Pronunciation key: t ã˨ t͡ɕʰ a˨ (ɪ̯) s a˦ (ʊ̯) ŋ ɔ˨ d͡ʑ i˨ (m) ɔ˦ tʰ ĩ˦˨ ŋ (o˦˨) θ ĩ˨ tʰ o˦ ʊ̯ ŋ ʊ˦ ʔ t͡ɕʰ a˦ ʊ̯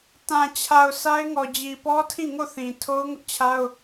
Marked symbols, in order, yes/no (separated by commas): no, no, no, yes